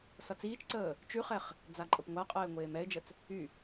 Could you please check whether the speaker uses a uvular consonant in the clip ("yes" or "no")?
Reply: yes